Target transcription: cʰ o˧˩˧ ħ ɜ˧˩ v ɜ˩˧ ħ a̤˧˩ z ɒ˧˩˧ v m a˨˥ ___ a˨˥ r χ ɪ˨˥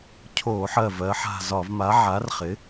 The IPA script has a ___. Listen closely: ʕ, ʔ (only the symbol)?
ʕ